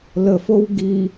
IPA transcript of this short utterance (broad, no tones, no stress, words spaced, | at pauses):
ləfow ɡi